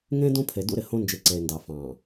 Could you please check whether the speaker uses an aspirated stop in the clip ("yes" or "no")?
yes